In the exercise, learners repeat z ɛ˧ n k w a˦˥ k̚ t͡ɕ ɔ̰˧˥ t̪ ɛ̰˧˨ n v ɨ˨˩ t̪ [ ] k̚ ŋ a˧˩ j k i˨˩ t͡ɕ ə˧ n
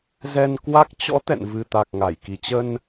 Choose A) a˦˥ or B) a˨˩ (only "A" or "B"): B